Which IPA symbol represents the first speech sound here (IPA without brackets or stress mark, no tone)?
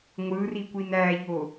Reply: ŋʷ